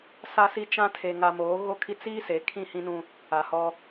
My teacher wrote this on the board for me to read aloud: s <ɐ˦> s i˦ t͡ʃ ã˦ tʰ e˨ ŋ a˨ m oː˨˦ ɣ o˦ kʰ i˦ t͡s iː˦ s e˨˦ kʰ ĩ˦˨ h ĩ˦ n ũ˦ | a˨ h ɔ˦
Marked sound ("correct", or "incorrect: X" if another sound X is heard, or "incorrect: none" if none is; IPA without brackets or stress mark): incorrect: a˦